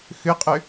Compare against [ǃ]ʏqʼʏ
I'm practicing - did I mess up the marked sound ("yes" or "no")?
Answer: yes